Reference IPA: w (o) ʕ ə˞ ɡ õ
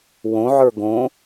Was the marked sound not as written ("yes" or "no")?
yes